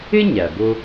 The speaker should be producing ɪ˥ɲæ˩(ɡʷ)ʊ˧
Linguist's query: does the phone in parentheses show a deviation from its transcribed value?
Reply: yes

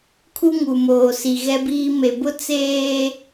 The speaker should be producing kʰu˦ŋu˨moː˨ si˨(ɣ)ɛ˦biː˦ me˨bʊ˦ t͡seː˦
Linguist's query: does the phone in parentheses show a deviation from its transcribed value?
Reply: no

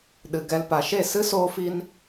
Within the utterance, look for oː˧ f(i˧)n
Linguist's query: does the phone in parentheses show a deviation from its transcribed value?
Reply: no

